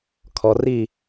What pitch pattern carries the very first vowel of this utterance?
low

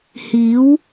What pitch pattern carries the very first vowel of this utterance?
rising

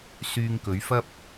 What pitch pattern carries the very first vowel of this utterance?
low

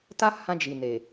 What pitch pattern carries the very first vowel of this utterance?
high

